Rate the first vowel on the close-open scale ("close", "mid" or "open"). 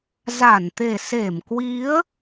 open